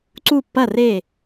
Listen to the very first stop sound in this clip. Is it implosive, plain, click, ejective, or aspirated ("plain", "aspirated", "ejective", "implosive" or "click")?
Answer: click